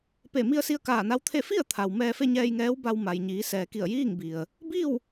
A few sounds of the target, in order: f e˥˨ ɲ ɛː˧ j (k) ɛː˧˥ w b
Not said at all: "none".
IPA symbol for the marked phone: ŋ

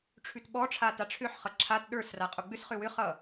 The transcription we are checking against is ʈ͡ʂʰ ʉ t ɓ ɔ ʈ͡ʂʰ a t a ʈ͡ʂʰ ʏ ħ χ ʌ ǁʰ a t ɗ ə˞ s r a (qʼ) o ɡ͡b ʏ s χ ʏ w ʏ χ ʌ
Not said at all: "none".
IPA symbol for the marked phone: qʼ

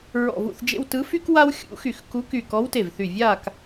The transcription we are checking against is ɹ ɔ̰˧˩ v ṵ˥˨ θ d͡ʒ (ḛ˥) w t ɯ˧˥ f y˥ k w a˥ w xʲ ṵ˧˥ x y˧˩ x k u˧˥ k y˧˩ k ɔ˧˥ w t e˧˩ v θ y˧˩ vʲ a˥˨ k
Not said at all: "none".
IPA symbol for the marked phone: ḛ˥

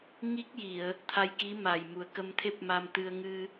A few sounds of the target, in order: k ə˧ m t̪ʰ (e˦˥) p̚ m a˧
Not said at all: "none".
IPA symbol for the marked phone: e˦˥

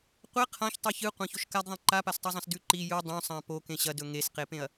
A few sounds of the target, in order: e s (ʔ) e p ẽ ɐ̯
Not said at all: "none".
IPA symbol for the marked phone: q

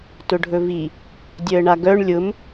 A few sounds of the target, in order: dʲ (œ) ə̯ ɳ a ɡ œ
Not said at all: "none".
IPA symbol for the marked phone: œ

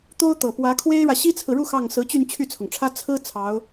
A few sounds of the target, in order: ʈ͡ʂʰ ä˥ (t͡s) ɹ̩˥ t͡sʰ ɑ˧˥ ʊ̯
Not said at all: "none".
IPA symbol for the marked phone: t͡sʰ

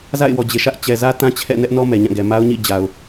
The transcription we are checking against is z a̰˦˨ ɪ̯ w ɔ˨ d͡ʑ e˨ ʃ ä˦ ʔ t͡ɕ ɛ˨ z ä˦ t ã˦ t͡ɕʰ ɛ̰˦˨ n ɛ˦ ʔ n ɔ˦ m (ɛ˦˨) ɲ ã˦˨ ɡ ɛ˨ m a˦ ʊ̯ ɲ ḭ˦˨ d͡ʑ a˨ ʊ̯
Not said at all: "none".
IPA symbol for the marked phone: ɛ˨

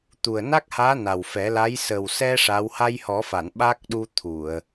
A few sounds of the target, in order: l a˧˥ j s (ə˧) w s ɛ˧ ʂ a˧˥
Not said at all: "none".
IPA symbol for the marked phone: ə˨˩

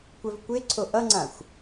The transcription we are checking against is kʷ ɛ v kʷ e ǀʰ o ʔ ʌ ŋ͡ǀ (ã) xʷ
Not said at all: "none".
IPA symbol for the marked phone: ã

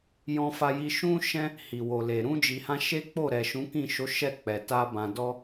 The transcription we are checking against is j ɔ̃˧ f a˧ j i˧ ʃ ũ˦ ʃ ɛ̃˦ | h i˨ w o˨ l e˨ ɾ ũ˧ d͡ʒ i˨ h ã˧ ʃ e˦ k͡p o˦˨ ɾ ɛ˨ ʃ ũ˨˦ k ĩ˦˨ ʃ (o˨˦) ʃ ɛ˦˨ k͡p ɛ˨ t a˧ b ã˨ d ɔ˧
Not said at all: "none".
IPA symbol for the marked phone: o˨˦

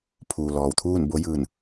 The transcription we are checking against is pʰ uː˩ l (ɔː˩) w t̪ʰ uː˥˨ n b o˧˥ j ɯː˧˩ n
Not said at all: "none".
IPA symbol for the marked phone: ɔː˩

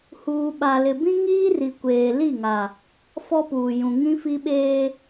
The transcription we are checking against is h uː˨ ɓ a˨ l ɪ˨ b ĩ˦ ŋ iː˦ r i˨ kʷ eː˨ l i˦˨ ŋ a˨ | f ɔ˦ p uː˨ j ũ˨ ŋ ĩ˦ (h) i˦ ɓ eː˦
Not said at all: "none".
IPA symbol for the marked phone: f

